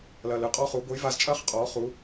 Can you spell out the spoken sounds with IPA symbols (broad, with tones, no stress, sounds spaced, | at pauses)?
l ɐː˨ l ɨ˨ qʼ ɔ˦ χ u˨˦ ɡʷ ɘ˨˦ j v a˧ z t͡ʃʼ ɐː˦ χ qʼ ɔː˨˦ χ u˨˦